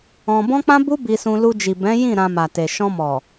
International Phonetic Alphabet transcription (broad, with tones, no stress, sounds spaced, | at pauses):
ɔ̃˧ b ɔ̃˦ k͡p ã˦ b u˦ b i˧ s ũ˧ l u˧ d͡ʒ i˨ b ɛ̃˨˦ j ĩ˦˨ ɾ ã˧ m a˨ t e˨ ʃ ɔ̃˧ m ɔ˨